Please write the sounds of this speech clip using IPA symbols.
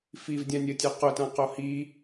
fivdʲãnʲɐtʲa qʊtã qohi

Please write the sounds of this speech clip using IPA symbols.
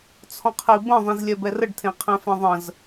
t͡sʰɔ̃qʰibə̃ ðˤĩzlʲɛbɛrəɖ tʰẽqʰɛ̃fɛ̃ðˤə̃z

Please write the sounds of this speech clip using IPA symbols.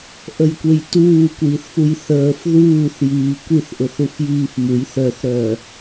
ʔəjkʷejtuː kʷiːθfujθəːf ðuːθjiː kʷiθʔʊθ ufjiːfmuj θœθɾœː

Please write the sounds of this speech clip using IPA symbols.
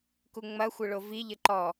kuŋ͡mɐ xʷɘɭovi ʎɘǃɔ

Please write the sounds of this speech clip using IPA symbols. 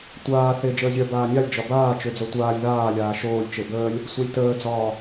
tʷaː θe d͡ʒəːzʲœ baːnʲalʲ d͡ʒɒbaːt͡ʃød͡zœ tʷaːlʲ ðaːlʲaː ʃoːlʲt͡ʃe bəːlʲ | sʷalʲtəːd͡zɒː

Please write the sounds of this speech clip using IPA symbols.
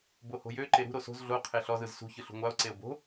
boho̤jø ǃeɾṳ ɾoso̤z ɮo qʰeɬɔz ɯzsṳ çɯɬṳŋʷao̯ ǀeo̯bo̤

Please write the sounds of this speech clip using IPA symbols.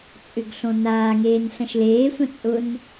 t͡sʼʏɡ ɬõnaːŋeːn ɬɐ̃ʃleːsʷɐ̃ t͡sʼʊn

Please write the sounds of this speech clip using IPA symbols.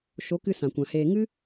ʃo˨˦kɨ˧ sã˨kʷã˨heː˧ ŋɨ˦

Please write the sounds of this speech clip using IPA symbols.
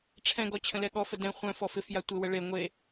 ʈ͡ʂʰɛ̃ɡɔ t͡ɕʰə̃lɛɠɔfə dɛ̃ χʷœ̃ fɔfɪfja tʷɪwə ɭe ŋʷe

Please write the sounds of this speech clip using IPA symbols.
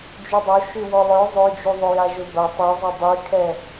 d͡ʒydˤoʃy wɔlˠœ zˤød͡ʒuðˤʊ jaʒʊbɐ tˤøzˤɐ dˤykʰɛ

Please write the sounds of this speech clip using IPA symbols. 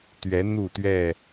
t̪ɥɛ˨˦ n̪u˥˨t̪ɥɛ˥˨

